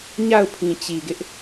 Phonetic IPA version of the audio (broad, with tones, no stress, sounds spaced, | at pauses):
ɲ a˦˨ ʊ̯ pʰ ĩ˨ t͡ɕ i˨ ɡ ɪ˦ ʔ